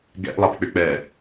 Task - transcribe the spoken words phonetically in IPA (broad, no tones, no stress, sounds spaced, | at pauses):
ɡ ɛ̰ ʔ lˠ a p k͡p ʏ k͡p ɛ